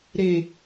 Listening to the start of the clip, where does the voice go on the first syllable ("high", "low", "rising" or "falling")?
low